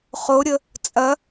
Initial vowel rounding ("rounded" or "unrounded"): rounded